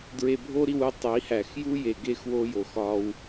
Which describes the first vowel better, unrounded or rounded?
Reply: unrounded